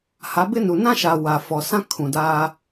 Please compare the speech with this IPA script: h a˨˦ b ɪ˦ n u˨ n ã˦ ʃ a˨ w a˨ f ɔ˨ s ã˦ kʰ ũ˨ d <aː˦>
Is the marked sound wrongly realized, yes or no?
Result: no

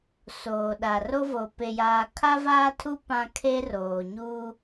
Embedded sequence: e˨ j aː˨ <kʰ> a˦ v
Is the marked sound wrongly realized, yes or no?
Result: no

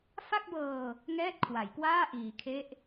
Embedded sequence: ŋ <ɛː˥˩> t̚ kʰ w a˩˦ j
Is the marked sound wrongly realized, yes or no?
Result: no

